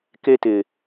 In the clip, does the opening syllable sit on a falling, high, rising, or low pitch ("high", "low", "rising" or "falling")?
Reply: high